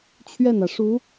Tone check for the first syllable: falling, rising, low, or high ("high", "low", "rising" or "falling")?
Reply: falling